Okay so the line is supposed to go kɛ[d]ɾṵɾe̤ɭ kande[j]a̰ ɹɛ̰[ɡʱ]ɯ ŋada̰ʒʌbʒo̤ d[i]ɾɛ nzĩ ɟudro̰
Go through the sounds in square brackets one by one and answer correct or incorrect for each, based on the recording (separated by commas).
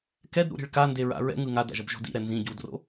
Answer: correct, incorrect, incorrect, incorrect